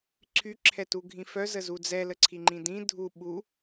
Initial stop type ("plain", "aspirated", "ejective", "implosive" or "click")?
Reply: click